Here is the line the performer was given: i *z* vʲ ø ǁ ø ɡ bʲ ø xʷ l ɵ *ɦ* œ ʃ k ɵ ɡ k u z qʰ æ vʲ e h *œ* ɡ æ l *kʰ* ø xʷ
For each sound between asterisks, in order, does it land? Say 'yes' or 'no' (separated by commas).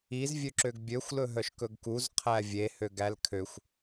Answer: yes, yes, no, yes